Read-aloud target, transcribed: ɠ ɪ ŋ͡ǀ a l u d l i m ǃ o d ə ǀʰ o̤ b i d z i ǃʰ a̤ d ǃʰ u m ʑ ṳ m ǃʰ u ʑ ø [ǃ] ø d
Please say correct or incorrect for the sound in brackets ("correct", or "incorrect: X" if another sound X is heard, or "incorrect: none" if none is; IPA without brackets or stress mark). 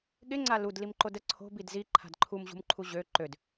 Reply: correct